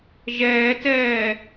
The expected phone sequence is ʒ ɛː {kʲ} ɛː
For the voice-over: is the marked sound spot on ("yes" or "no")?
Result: no